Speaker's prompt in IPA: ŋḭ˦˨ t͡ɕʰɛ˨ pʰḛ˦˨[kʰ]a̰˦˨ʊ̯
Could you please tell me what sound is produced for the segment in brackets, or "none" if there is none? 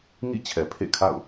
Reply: kʰ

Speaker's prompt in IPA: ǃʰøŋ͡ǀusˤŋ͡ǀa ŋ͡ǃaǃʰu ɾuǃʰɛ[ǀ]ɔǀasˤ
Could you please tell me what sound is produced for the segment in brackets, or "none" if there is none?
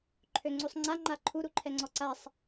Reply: ŋ͡ǀ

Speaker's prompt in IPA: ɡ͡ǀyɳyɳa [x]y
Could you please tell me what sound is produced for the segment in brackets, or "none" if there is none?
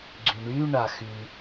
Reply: x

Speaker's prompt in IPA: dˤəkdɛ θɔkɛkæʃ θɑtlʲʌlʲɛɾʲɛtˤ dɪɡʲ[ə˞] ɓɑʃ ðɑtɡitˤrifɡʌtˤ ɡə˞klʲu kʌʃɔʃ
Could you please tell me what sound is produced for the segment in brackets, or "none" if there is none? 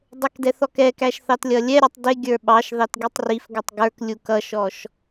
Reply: ə˞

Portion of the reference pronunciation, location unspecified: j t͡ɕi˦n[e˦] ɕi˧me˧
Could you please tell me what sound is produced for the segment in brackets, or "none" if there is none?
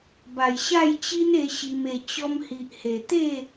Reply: e˧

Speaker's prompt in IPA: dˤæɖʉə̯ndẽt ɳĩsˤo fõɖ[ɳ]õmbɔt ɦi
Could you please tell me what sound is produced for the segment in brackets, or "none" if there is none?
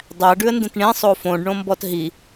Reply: ɳ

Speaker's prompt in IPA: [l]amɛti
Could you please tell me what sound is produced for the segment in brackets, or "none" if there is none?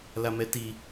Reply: l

